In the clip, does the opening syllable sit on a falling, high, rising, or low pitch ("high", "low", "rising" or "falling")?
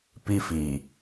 high